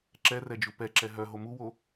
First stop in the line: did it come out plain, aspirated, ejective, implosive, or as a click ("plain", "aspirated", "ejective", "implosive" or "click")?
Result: click